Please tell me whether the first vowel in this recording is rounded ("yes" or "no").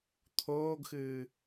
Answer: yes